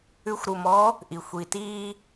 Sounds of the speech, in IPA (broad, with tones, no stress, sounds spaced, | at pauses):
ʉ˥ xʷ ɾ u˧ m ɔ˧˥ | ʔ i˩ xʷ i˩ t iː˧